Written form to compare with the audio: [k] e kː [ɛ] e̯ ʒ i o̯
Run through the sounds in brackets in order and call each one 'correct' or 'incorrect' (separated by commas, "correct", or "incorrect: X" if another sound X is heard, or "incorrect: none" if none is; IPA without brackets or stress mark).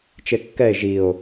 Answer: incorrect: t͡ʃ, correct